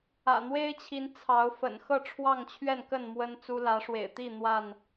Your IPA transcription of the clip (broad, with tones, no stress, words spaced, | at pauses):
ä̰˨˩n̪we˦ɪ̯t͡ɕʰi˨˦n t͡sʰɑ˨˦ʊ̯ fə̰˨˩n xɤ˥˨ʈ͡ʂʰwɑ˥˨ŋt͡ɕʰɥɛ˥˨nkə˥˨n mwə˦nt͡su˦ lä˨˦ʂwḛ˨˩ɪ̯t̪i˥˨ n̪wa˥˨n